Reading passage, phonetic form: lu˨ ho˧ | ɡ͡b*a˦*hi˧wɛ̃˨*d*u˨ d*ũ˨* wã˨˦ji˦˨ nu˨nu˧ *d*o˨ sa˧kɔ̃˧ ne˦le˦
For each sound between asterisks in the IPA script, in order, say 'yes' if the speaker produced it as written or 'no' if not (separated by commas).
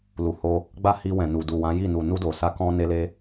yes, no, no, yes